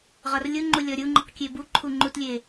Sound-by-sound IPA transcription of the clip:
ʁɒrlʲuŋ͡ǃu lʲɔɾʲu ŋ͡ǃuqkʲebu ǃʰuŋ͡ǃutlʲe

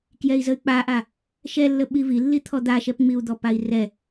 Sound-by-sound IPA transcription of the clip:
kjɛi̯zəy̯k͡paʔa | ʃɛlːə ɓivilːi t̪ʰɔd̪aʃɛpŋ͡miu̯ d̪ɔpai̯rɛ

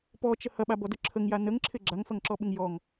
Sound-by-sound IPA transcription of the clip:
pɔt͡ʃə hɐɓabɔdʊ ǁʰəŋja nəŋǁʰɪ ɡ͡ǁaŋfɐŋǁɔɓɪŋ jɔŋ

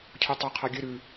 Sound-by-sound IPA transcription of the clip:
cʰotˤɐ qʰaɡʲɨ ɾʉ

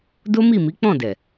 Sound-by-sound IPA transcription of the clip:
do˦mi˦˨mi˨˦ k͡pɔ̃˦˨dɛ˨

